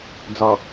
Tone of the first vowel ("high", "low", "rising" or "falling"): low